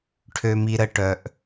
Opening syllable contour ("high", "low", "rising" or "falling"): low